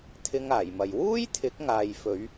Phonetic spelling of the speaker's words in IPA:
t̪ʰɪ˧ŋaː˨˩jmɐ˨j wuː˥jt̪ʰɪ˨˥k̚ŋaː˨jfɵ˨˧ɥ

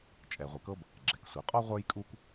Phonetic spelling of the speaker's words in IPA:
t͡ʃʼɛ˩ ʁʷɨ˩kɤ˦b | ɡ͡ǁɛ˩ksʷɨ˩ qʼɔ˦ ʁʷə˞˦jkʼu˦k

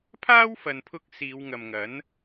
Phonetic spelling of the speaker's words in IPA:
pʰaː˥wfɐ˨npʰʊ˧k̚ siː˨˧w ŋɐ˨mŋɐ˨˥n

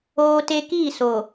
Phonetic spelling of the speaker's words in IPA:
oː˦te˦ kiː˦˨so˨

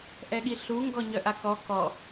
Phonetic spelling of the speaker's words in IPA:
ʔɛɠiɬu ŋɡɔɲœʔakɔ kɔ

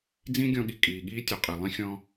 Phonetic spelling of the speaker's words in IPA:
d͡zĩ˥ɡʲɔ̃˧ɠi˩ kʼiː˩ɠiː˥tʲu˩ qʼi˩lˠĩ˥ xʲɔ̃˧

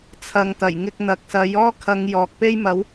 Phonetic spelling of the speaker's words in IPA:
t͡sʰɐ˨ŋt̪ɐ˨˩j ŋɪ˧k̚n̪ɐ˨k̚sɐ˨˥j ɔː˥kʰɐ˨˧ŋ jɔː˨k̚pe˥jmɐ˨˥w

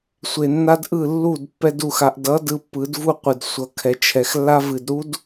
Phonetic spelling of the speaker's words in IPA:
sʷe˨nːa˦dʔɯ˦˨ lːu˦˨dpːɛ˧d u˨xa˨ʔ dʌ˨˦ dɯ˧pːɯ˨˦dvu˦˨qʷɨ˨d sʷʌ˨kʰɛ˨t͡ʃʰɛ˨xlːa˦v ɨ˨dɾu˦d

